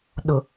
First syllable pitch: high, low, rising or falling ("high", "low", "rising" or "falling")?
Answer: low